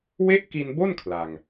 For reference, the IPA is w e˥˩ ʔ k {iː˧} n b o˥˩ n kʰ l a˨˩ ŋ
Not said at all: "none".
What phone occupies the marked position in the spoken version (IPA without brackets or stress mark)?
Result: i˧